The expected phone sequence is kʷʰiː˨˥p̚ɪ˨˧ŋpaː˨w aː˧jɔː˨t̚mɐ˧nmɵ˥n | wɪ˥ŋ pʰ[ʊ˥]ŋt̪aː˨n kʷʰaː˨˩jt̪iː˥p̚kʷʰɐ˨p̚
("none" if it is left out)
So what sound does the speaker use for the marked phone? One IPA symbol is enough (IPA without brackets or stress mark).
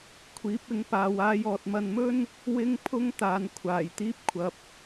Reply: ʊ˥